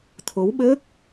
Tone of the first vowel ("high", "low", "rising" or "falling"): rising